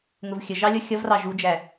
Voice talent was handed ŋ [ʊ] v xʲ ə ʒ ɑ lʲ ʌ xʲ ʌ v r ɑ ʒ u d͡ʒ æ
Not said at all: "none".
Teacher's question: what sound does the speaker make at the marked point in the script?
ʊ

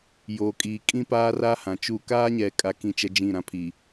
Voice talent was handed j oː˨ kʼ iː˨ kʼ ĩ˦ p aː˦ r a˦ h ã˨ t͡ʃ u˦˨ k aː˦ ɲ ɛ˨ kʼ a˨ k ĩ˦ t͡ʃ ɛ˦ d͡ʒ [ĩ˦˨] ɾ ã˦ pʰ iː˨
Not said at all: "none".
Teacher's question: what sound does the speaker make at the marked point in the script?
ĩ˦˨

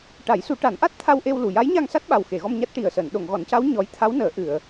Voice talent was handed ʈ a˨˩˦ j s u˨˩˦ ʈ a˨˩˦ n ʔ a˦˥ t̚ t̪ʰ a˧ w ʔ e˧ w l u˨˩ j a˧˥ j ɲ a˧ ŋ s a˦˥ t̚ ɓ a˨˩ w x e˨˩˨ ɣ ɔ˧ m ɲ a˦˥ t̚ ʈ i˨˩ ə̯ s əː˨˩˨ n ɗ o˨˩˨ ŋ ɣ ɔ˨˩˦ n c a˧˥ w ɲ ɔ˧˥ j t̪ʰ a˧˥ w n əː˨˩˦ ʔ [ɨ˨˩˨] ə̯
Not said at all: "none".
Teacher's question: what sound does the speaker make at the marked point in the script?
ɨ˨˩˨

